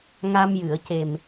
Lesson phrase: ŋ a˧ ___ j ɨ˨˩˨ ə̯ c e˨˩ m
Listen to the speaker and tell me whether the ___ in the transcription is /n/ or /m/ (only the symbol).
m